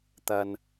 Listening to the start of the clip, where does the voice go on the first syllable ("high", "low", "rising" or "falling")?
low